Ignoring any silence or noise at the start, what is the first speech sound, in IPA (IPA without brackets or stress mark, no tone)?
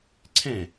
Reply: ǀʰ